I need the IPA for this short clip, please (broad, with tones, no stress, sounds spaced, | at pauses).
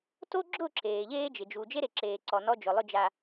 t o˦ ɡ͡ǁ ʊ˦˨ ǁ eː˨ ʎ eː˦ d͡ʒ ɪ˨ d͡ʒ u˨ d͡ʒ e˦ ɾ e˨ ǁ eː˨ ǀ ɔ˨ n ɔ˦ d͡ʒ ʊ˨ lˠ ʊ˦˨ d͡ʒ a˨